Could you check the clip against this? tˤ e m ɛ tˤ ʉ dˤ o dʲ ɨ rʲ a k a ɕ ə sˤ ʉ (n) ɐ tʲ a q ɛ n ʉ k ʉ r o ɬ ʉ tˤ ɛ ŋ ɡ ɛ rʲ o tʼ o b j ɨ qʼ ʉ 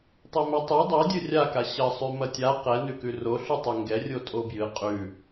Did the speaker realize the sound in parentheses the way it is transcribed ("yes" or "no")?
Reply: no